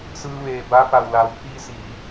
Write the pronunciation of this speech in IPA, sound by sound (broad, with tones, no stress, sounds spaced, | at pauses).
s ɯː˧ ʋ eː˩ b a˧˥ p a˩ w l a˩ w pʰ iː˧ s iː˩˧